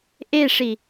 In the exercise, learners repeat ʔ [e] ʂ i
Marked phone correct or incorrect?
correct